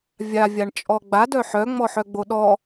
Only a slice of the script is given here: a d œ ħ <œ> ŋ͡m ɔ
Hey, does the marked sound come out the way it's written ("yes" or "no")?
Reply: yes